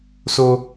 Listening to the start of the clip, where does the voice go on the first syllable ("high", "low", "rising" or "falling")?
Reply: high